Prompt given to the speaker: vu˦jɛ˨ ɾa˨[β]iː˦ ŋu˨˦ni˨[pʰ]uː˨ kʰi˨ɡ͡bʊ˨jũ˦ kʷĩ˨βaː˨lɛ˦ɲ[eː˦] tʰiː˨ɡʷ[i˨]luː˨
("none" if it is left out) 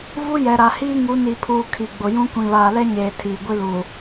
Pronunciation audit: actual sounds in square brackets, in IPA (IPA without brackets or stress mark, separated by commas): h, pʰ, eː˨, i˦